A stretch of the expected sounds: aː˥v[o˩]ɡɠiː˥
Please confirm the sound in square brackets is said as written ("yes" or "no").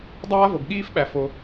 no